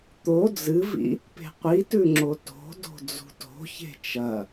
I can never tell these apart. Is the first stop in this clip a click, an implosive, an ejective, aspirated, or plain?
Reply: plain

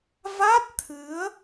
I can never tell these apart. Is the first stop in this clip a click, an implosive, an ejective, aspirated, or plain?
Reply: plain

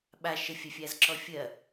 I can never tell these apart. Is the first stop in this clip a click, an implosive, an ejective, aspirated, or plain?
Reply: implosive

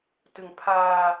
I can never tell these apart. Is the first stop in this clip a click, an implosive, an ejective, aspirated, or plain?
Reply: plain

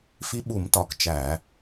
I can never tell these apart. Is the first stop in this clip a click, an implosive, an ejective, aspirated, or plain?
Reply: implosive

